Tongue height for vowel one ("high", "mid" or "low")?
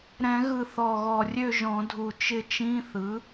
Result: mid